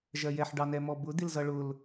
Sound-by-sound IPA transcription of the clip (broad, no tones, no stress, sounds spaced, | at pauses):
ʒ ɜ j ɛ ħ ɖ ɑ n ɛ m ɔ b ʊ d̪ ɪ l z ʌ ɭ ʊ l